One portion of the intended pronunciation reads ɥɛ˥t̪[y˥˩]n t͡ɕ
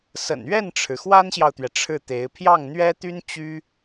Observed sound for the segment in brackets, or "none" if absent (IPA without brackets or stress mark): y˥